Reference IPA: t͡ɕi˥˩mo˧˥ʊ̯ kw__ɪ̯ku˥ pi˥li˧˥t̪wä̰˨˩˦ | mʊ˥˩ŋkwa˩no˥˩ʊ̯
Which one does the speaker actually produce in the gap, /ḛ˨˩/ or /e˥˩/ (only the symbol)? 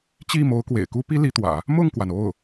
ḛ˨˩